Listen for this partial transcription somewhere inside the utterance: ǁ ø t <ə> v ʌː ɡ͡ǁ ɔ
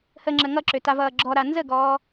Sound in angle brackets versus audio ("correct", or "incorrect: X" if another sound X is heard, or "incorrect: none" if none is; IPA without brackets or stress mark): incorrect: a